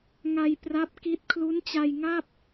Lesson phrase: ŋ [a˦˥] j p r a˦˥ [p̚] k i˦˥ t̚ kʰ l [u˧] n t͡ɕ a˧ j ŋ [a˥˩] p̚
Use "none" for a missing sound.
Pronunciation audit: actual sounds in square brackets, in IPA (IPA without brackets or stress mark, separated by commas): a˧, p̚, u˦˥, a˥˩